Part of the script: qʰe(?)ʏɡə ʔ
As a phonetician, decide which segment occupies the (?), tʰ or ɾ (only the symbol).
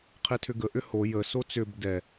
tʰ